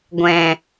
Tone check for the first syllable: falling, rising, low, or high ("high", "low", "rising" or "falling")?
low